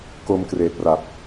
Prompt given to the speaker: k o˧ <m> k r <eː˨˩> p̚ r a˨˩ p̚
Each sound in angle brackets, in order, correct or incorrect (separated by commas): correct, correct